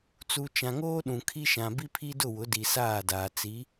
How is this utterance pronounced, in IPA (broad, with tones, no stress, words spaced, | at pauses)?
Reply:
t͡su˨ t͡ʃã˨ŋoː˦ɗũ˨ kʰi˦ʃã˨ bi˦pʰi˦dʊ˦˨wʊ˨˦ di˨saː˦˨daː˨ t͡si˨˦